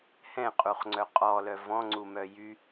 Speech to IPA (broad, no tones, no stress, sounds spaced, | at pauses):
h ɛ̃ qʼ u χ ŋ͡ǀ œ qʼ ɔ l œ v ɔ̃ ŋ͡ǀ u m œ j y